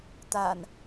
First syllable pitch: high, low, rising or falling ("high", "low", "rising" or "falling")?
low